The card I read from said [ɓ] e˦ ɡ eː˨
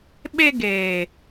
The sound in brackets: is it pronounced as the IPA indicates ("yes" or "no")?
yes